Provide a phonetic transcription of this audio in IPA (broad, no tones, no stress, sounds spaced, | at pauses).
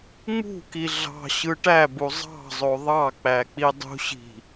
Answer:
ŋ͡m ṳ k i ɮ ɑ̤ ɕ ɯ ʈ æ b u zˤ ɑ̤ zˤ o ðˤ ɑ k͡p æ k͡p i dˤ ṳ ɕ i̤